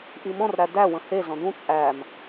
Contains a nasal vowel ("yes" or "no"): yes